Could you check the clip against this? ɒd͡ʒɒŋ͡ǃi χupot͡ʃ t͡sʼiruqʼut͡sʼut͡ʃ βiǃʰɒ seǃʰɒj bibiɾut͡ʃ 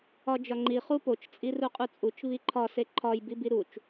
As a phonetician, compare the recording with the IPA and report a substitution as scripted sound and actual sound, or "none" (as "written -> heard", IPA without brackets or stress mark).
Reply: none